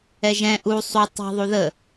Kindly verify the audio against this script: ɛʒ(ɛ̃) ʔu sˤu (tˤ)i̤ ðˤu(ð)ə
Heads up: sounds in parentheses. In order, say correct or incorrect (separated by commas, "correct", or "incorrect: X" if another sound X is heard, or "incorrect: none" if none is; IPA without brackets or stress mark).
correct, correct, correct